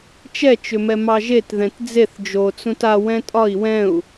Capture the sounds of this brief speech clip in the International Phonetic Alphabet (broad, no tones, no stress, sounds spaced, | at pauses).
t͡ʃ ɛ t͡ʃ ʏ m ɛ m ɑ ʒ e t ð ɛ̃ t d͡z e θ d͡ʒ o t͡s ũ t a w ɛ̃ tʼ ɒ i̯ w ɛ̃ u̯